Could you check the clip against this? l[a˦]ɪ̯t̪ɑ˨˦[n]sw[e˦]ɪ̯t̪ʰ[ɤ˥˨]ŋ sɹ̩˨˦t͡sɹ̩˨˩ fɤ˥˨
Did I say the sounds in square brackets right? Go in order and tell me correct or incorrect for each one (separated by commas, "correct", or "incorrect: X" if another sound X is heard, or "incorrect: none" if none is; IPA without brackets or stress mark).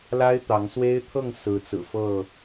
correct, incorrect: ŋ, correct, correct